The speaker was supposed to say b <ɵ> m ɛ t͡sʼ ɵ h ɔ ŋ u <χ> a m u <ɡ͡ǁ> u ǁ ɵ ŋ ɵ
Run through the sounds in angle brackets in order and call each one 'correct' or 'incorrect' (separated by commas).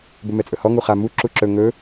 correct, correct, incorrect